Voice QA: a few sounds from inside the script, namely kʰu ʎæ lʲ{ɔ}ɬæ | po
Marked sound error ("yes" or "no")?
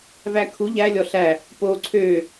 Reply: no